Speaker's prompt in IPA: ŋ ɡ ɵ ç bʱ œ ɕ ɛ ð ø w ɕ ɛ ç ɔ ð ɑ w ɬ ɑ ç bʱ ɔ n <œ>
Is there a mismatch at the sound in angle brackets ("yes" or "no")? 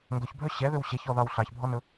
yes